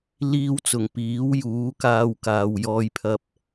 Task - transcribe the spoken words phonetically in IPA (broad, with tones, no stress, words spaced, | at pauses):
liː˧wt͡sʊ˨˩ŋ piː˨˥wjuː˨˥ kaː˧wkaː˨wjɔː˧jpʰɐ˧p̚